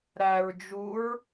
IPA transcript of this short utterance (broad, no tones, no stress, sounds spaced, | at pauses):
ɾ æ ɹ d͡ʒ u ɹ